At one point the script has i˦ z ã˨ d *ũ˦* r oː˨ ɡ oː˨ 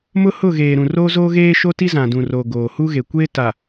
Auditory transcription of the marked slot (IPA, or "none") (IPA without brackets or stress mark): ũ˨